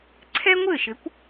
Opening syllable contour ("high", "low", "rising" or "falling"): high